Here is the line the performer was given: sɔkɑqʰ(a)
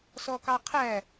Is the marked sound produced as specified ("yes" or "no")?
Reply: no